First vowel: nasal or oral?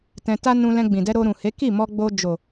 nasal